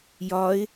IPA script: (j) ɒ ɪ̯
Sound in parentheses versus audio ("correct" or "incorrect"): correct